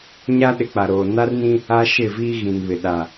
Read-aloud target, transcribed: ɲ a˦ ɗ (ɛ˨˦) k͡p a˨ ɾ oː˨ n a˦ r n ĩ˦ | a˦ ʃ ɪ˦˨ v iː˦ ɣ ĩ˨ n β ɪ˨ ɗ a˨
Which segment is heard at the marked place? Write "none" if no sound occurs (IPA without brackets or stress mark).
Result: ɪ˨˦